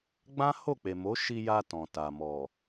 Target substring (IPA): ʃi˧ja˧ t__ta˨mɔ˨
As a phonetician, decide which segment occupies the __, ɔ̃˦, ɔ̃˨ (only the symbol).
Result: ɔ̃˨